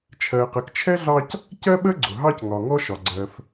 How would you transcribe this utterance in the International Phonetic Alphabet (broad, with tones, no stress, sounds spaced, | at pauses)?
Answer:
t͡ʃʰ ɜ˨ q ə˨ k t͡ʃʰ ɛ˥ ɮ ɑ˦ c | c ɜ˥ ɓ ə˥ ɡ͡ǀ ʊ˩ ɦ ɑ˦ c ŋ ɒ˨ ŋ ɔ˥ ʃ ɒ˨ ɡ͡ǀ ɜ˨ f